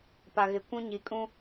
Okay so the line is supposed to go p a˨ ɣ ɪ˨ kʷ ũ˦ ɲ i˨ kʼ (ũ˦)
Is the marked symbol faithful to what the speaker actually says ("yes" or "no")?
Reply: yes